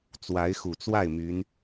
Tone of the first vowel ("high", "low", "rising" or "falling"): rising